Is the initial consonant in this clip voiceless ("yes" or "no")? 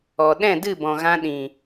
no